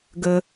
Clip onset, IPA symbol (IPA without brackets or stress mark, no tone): ɡ